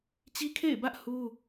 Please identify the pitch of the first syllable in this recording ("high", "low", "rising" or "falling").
high